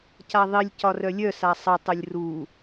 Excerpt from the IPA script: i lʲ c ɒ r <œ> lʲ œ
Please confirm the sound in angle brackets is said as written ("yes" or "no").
yes